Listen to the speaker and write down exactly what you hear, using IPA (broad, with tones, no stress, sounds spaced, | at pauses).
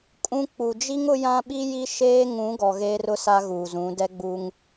kʼ ũ˦ k͡p u˨ d͡ʒ i˦ ŋ ʊ˦ j ã˦ ɓ i˦ j i˦ ʃ eː˦ ŋ ũ˨˦ ɡ ɔ˨ ɣ eː˦ r ʊ˦ s a˦ ɣ uː˨ z ũ˨˦ d ɛ˦ ɡ͡b u˦ ŋ